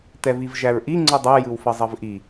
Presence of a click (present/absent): present